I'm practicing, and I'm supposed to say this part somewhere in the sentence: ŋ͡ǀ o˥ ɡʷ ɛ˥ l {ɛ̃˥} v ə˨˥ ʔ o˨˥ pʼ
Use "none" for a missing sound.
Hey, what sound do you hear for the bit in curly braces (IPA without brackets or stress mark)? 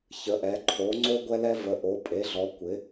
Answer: ɛ˥